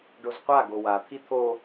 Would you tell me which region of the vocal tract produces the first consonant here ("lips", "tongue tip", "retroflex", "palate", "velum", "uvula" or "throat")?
retroflex